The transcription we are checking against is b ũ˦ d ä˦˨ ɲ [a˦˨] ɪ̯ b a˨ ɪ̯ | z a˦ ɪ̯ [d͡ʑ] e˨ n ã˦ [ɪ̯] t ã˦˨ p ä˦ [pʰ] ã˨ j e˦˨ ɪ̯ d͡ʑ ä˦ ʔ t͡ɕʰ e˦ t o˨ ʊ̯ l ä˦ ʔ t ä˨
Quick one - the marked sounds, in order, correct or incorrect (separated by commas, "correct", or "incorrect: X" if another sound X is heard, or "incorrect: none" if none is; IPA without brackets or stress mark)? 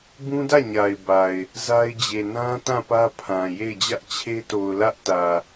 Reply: incorrect: a˨, correct, incorrect: none, correct